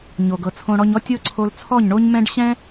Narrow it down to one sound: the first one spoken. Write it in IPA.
ɲ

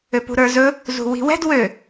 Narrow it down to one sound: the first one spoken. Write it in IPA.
ø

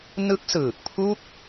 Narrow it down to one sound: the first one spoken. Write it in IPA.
n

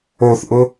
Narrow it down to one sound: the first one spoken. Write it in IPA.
o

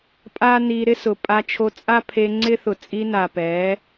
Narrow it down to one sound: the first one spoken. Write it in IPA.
pʼ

